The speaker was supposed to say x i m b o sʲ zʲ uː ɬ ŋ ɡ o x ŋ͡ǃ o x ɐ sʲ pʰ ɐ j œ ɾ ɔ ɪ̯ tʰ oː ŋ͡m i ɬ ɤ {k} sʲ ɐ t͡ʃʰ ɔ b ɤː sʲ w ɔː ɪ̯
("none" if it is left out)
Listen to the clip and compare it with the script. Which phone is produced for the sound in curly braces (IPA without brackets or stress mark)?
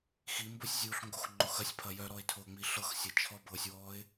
x